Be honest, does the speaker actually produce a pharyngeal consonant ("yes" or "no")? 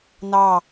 no